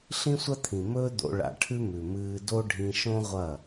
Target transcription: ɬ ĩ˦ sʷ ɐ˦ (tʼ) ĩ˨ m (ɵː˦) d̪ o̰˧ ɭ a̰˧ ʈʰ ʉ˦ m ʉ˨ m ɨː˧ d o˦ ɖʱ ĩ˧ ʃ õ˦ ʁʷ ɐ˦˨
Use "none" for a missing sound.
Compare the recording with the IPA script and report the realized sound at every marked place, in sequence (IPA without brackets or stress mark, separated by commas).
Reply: t̪ʰ, ɵː˦